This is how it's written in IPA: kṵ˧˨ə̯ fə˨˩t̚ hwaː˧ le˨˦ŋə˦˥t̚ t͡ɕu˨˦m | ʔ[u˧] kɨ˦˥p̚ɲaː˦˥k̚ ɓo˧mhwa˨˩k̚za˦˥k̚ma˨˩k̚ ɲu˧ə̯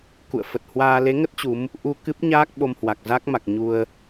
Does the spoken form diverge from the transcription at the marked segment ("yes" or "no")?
no